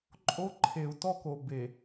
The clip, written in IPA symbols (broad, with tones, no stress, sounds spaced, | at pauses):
ǃʼ o˦ ǃʰ e˨ u̯ t ɔ˦ k o˨ b e˨